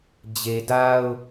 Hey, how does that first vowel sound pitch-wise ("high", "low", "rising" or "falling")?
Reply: low